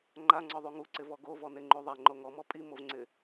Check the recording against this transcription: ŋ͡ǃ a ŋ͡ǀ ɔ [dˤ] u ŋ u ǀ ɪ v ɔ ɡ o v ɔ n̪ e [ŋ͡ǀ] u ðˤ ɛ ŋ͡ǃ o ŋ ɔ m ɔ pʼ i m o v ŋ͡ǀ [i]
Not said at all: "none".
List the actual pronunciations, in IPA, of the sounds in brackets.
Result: ðˤ, ŋ͡ǃ, ɪ

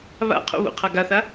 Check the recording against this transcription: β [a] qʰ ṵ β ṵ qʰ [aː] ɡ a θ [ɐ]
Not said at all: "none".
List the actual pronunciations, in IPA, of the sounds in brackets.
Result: a̰, a, a

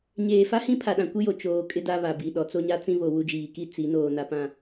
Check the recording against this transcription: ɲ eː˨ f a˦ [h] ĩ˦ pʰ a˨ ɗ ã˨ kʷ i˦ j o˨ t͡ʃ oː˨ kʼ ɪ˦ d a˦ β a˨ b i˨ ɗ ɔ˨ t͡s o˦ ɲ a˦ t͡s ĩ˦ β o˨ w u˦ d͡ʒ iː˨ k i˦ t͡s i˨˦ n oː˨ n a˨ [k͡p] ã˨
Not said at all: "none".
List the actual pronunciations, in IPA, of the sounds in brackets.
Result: h, p

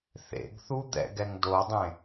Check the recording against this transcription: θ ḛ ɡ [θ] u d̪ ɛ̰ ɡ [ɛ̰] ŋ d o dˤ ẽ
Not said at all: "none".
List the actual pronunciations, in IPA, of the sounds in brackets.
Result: θ, ɛ

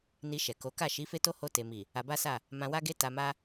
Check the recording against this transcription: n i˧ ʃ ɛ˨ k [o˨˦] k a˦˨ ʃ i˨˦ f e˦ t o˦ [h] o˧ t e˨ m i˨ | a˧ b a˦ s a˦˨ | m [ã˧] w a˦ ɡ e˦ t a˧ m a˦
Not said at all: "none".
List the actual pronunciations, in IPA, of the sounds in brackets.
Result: o˨˦, h, ã˧

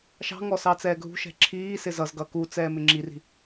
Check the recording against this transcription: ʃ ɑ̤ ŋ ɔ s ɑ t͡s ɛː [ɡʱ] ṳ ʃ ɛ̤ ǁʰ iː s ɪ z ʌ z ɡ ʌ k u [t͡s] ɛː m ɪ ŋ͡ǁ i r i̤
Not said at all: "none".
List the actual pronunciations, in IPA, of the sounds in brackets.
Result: ɡʱ, t͡s

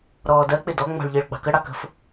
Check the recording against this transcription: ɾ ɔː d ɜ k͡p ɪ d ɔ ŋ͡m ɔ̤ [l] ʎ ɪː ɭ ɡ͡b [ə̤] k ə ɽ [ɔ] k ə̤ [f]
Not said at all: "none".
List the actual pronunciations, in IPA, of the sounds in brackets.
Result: ɭ, ɑ̤, ɑ, f

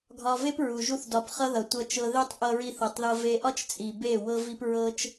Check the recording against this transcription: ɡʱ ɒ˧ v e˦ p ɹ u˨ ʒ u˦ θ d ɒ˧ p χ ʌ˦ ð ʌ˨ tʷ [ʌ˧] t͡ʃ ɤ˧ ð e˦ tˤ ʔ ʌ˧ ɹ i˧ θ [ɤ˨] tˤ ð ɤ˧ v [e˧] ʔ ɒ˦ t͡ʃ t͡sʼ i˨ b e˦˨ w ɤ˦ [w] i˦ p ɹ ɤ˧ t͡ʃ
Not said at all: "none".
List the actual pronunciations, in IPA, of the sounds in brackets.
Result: ʌ˧, ɤ˨, e˧, v

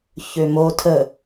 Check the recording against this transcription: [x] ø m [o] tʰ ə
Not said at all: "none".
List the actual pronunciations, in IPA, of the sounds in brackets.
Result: ç, o

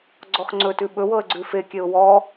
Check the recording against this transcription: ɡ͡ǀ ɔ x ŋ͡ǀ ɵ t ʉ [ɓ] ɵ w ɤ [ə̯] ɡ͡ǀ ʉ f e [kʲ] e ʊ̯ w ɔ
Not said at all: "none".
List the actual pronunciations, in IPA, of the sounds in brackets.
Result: ɓ, ə̯, kʲ

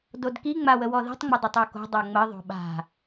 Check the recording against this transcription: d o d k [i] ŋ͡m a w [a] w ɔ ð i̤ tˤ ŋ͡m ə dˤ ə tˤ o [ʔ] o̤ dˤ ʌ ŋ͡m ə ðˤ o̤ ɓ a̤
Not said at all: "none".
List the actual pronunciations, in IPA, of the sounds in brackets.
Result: i, ə, k

